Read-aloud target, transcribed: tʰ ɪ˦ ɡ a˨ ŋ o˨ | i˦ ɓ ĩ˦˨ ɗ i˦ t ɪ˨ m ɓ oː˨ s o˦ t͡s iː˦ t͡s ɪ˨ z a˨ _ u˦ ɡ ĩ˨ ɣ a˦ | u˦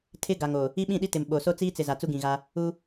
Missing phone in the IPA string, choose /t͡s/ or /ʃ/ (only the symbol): t͡s